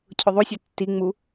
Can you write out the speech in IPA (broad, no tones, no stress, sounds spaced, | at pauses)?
cʰ ʊ ðˤ u sʲ ɛ tː i ŋ͡m u